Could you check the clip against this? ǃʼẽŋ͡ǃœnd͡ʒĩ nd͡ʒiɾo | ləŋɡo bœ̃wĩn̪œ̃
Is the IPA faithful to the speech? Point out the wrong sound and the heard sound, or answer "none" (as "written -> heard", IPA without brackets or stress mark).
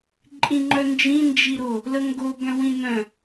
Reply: ẽ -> ĩ